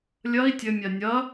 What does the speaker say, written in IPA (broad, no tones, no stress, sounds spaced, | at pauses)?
lʲ ɐ i̯ tʲ ɘ mʲ a nʲ ɐ